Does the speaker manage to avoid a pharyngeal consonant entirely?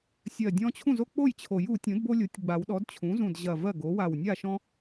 yes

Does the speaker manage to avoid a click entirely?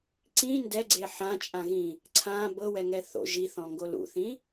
no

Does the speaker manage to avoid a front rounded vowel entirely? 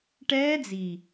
yes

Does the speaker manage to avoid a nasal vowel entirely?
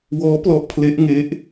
yes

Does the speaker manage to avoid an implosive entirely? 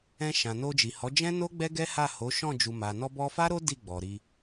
yes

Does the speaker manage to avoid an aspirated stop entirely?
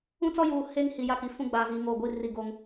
yes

